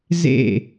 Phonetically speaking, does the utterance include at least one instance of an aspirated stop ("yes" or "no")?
no